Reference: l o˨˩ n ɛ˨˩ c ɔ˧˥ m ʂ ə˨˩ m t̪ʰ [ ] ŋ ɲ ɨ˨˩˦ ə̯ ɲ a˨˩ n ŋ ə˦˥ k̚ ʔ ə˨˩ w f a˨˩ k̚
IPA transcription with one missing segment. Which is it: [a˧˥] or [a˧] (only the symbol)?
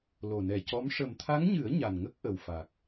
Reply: a˧˥